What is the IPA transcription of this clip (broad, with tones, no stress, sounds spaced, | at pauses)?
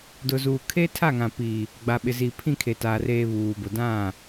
d ʊ˨ z uː˨ kʰ e˦ tʰ a˦˨ ŋ ã˨ p iː˨ | ɡ͡b a˨ ɓ ɪ˨ z iː˨ pʰ ĩ˦˨ kʰ e˨ t aː˨ r eː˨ β uː˨ b ʊ˨ d ã˦˨